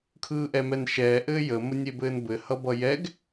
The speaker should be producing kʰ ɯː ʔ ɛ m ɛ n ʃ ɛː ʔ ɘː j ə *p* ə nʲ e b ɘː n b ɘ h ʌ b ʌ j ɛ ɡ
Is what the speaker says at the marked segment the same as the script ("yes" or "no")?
no